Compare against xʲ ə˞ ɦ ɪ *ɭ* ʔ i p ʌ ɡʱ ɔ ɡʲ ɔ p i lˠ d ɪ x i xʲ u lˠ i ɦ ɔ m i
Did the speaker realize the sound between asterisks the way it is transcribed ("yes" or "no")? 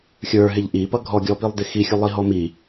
no